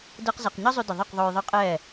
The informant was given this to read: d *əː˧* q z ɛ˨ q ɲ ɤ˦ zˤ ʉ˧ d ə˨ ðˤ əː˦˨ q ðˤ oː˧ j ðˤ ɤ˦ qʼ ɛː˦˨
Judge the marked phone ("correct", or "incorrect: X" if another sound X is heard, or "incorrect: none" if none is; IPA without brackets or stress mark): correct